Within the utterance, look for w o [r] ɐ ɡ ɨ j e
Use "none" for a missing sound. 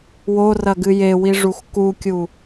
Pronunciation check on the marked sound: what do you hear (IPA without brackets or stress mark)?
r